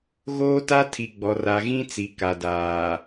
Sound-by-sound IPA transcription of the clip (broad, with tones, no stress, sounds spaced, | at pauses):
ɣ oː˦ t a˦ tʰ i˨ ɡ͡b ɔ˨ r a˨ ɣ ĩ˦ t͡s i˨ k a˨ d aː˨